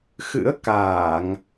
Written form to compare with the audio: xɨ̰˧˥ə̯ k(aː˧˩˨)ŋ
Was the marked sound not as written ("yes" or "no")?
no